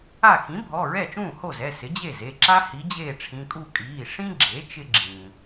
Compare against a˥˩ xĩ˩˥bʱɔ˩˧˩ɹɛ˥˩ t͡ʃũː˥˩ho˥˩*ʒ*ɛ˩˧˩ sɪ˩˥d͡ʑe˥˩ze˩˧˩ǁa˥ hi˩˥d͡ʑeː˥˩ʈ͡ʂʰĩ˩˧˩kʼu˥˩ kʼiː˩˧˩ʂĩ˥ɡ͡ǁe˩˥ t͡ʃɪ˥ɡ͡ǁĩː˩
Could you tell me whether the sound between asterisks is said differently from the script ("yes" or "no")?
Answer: yes